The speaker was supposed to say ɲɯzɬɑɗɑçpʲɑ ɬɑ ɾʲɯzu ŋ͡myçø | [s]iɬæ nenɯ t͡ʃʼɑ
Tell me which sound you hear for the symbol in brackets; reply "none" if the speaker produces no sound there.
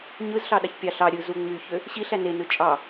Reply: ɕ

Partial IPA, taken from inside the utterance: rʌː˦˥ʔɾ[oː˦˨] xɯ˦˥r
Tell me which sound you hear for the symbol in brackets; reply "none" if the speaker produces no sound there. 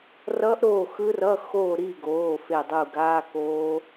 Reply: oː˦˨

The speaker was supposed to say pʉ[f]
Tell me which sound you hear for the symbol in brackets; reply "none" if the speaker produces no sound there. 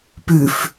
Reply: f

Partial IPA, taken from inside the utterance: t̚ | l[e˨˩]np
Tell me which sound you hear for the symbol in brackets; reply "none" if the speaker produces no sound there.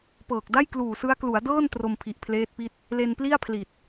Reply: e˧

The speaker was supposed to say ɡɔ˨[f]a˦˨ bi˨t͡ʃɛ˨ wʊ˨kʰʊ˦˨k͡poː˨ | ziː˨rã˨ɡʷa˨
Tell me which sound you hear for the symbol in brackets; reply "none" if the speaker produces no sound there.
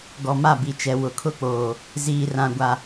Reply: m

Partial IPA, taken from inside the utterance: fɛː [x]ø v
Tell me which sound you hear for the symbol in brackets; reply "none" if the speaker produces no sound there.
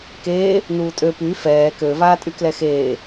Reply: k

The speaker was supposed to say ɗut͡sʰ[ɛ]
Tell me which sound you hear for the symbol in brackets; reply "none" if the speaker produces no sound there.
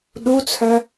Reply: œ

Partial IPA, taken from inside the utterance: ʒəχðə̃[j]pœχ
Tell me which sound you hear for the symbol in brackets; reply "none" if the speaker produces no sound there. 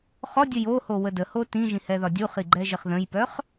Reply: j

